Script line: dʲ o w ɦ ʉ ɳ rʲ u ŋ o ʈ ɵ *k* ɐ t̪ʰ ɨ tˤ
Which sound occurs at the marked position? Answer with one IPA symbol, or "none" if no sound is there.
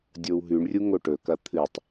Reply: k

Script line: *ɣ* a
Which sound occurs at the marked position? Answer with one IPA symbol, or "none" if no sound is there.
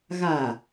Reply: ɣ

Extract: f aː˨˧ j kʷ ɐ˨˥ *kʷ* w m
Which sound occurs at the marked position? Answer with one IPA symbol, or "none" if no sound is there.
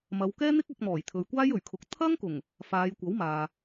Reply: none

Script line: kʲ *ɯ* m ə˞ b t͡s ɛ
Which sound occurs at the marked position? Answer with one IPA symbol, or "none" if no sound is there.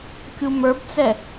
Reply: u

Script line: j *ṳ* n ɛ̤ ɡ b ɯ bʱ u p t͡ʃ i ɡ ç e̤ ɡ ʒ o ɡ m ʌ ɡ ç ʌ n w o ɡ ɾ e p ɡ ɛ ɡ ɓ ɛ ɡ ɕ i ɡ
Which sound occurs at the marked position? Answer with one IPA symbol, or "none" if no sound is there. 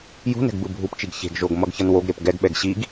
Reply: ṳ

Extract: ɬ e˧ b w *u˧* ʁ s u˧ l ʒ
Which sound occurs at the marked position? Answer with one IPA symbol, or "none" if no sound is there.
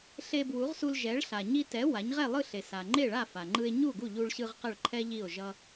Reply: u˩˥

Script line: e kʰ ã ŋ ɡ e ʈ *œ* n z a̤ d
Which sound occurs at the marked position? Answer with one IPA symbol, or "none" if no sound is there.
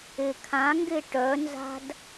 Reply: œ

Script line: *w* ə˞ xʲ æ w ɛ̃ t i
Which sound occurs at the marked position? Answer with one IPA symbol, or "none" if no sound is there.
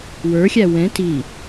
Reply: w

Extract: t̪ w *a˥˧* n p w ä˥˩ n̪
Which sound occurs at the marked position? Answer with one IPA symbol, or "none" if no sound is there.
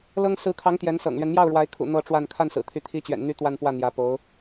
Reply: a˥˧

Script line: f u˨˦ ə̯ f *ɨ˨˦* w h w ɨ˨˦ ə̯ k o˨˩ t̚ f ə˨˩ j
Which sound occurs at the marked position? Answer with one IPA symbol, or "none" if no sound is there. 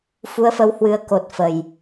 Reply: ə˨˦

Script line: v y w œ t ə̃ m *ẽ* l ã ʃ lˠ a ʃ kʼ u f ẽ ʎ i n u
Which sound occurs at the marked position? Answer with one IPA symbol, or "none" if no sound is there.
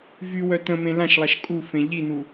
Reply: ẽ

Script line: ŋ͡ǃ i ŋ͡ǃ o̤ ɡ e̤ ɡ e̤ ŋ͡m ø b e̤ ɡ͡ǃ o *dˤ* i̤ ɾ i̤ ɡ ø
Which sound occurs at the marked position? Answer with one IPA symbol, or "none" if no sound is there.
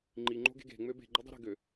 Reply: dˤ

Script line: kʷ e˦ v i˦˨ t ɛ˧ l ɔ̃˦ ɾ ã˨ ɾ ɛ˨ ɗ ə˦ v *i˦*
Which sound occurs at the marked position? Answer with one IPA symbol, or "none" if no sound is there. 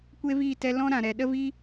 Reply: i˦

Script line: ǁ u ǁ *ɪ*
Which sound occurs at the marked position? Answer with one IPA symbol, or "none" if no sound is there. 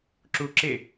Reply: ɪ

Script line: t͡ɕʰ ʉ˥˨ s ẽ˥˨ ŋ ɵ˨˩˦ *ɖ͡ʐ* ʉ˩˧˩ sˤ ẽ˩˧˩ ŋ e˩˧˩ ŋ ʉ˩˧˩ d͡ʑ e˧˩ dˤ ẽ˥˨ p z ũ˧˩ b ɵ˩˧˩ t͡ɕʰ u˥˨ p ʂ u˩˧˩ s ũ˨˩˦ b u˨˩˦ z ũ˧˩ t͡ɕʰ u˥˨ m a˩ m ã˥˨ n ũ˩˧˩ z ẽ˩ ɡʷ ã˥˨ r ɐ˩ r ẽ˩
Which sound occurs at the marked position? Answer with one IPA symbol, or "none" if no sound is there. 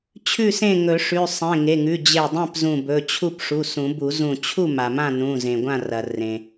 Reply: ʂ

